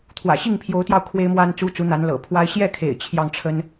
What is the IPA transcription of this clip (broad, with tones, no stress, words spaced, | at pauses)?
t̪ʰwä̰˨˩ɕi˥˩ŋpʰjo˧˥ʊ̯t̪jɑ˧ʊ̯ kʰwe˥ɪ̯mwa˥nt͡su˥t͡su˧˥ n̪a˧˥nlɤ̰˨˩ pʰwa˥ɪ̯ ɕjɛ˥˩kʰḛ˨˩ɪ̯ t͡ɕʰjɑ˥˩ŋʈ͡ʂʰə˥n